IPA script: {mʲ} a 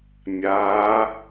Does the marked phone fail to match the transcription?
no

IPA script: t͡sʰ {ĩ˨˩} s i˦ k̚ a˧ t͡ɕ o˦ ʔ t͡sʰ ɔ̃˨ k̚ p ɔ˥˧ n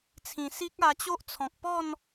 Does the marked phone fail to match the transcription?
no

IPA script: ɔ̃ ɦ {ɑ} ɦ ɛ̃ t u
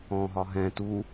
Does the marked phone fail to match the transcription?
yes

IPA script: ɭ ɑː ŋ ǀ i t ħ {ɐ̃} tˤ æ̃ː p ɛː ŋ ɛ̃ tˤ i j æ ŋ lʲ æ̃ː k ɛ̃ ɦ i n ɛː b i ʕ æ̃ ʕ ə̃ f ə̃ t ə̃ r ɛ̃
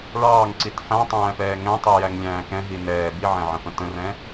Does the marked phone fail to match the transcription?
yes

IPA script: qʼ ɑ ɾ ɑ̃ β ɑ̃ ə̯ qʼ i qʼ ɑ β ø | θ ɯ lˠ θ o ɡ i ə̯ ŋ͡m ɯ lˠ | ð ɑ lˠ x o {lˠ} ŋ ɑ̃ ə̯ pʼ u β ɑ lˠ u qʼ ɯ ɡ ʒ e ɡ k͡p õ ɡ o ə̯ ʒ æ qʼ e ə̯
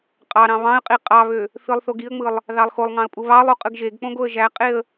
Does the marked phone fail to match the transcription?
no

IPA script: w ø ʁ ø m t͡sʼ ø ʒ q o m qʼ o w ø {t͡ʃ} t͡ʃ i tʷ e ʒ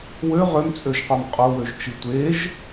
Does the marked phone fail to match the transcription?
yes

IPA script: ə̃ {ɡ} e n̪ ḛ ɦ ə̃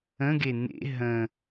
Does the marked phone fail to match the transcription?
no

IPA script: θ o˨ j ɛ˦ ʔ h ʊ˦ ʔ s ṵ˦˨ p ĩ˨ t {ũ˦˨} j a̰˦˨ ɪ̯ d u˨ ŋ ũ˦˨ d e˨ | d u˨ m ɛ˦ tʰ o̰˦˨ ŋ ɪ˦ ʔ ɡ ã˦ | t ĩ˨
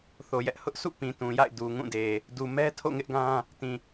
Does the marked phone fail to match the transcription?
yes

